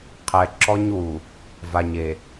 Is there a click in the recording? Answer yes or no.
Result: yes